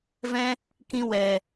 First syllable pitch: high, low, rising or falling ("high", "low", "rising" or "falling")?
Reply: high